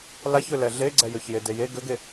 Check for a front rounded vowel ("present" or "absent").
present